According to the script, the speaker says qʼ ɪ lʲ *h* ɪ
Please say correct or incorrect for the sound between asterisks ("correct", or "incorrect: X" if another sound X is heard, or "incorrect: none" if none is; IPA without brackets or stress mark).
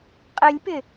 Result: incorrect: p